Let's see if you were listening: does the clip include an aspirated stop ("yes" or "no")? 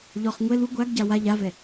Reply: no